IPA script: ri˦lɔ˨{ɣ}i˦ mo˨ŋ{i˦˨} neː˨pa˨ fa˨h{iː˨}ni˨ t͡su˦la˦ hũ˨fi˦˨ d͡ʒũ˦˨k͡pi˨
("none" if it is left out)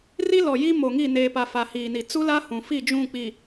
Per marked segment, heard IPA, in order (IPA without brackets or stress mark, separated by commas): j, i˦˨, iː˨